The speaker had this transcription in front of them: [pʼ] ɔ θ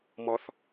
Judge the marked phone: incorrect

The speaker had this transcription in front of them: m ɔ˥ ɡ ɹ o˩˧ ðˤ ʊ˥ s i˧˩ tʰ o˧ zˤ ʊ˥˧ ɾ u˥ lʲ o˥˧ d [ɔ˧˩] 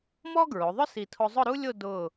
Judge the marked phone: incorrect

